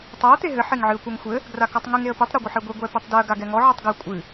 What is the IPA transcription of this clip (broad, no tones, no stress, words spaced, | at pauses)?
tˤaə̯ t̪eɦɘ ħeŋʕɨə̯kʷɛŋxʷɘ | ɡrakɔtˤŋɨŋ eə̯pɨtˤ ɾɛɡʷɘħɛɡʷe ɡʷɛpɘtˤdɨə̯ ɡaɡɛŋɔ ʕɘtˤɡɐ kʷʼɨ